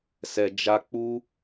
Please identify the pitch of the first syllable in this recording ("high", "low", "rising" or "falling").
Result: low